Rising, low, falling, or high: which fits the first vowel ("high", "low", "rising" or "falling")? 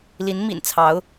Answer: rising